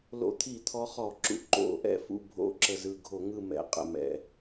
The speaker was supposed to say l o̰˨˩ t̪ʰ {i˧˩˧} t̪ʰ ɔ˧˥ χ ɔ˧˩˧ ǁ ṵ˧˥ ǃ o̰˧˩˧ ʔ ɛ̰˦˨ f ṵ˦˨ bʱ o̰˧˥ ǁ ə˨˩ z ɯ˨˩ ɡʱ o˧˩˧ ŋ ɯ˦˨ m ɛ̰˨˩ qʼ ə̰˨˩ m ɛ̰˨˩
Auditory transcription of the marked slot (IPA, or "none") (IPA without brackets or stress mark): i˧˩˧